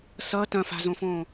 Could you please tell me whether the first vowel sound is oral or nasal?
oral